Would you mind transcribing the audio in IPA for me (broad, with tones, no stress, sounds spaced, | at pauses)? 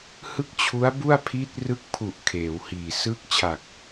h ɯ˥˩ k̚ t͡ɕʰ u˦˥ a̯ b u˥˩ a̯ pʰ i˦˥ t̚ r ɯ˦˥ k̚ pʰ u˨˩ ʔ kʰ eː˩˦ w h iː˨˩ s ɯː˦˥ k̚ t͡ɕʰ a˨˩ k̚